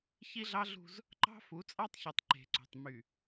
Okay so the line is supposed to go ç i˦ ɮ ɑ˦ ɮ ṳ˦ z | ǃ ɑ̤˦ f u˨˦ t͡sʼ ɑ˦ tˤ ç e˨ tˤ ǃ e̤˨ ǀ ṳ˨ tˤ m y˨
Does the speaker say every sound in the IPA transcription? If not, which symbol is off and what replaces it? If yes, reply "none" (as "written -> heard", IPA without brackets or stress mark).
none